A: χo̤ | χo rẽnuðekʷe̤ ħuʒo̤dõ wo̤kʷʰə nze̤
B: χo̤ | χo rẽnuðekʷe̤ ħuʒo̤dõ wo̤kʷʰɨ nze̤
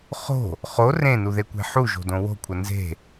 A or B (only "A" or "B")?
A